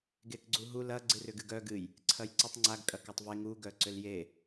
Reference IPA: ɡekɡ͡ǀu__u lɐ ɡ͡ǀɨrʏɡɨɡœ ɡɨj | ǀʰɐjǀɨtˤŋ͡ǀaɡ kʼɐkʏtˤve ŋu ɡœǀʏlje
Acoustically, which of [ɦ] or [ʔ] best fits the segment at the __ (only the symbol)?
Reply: ɦ